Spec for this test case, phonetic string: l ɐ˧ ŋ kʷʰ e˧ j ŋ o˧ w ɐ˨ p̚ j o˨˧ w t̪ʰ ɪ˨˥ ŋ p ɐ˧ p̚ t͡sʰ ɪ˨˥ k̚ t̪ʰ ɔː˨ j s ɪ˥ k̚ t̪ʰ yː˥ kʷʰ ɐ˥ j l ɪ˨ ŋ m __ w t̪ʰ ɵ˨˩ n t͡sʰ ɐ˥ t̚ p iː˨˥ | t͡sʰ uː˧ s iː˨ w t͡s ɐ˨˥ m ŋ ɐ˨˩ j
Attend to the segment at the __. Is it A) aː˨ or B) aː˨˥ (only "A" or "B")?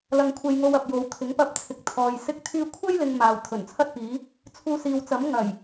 A